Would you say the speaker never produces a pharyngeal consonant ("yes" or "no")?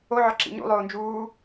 no